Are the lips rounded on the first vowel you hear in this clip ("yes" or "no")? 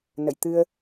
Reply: no